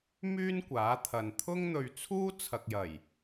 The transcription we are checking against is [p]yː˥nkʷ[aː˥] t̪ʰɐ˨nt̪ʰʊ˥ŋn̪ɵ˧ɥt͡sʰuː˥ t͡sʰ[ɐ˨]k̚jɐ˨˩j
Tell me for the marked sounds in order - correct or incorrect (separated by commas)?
incorrect, incorrect, correct